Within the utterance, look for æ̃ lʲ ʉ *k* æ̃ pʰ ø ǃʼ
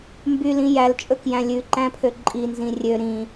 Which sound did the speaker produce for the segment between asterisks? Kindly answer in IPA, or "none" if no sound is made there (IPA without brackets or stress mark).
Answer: ǃ